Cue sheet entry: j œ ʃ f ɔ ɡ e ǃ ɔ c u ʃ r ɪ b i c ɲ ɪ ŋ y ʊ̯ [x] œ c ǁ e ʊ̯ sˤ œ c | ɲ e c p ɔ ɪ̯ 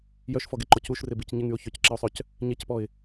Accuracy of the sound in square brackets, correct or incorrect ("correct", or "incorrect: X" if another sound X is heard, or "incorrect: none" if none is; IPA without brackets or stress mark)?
incorrect: ç